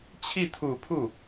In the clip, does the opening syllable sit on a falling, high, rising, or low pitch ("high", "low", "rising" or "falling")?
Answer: falling